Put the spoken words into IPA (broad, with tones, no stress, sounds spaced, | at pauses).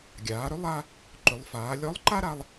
ɡʲ aː˩˧ ɾ ʏ˧˥ lˠ a˧ | ǃ ʏ˩˧ lˠ f aː˩˧ lʲ ɔ˧˥ lˠ ǃ a˥ ɾ a˧ lˠ